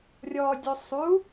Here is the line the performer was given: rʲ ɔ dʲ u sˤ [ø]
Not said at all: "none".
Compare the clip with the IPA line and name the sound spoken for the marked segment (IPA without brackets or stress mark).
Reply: u